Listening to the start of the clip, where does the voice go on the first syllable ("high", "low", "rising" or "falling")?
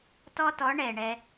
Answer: high